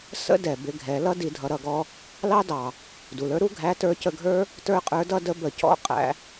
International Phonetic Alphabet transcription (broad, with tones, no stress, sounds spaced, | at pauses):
s ə̰˥ d ɛ˩ b ɪ˧ ɡʱ ɛ˩˧ l ʌ˥ d i˩˧ dʱ ʌ˩˧ ɾ ʌ˩ ɡ ɔ˧ | l ɑ˥ d ɑ˩ | d u˩ l ə˞˧˥ ɾ u˥ ɡʱ æ˧˥ t ə˞˧˥ c ə˧ ɡʱ ə˞˥ | t ə˞˥ qʼ ə˞˧˥ d ʌ˥ d ə˧˥ b ə˩˧ c ɔ̰˧˥ qʼ æ̰˩˧